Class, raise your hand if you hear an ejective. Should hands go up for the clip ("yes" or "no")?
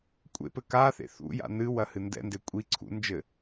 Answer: yes